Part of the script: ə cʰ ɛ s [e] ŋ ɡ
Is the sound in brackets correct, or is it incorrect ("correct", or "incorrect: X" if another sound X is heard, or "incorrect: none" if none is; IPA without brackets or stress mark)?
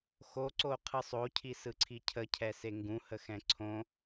correct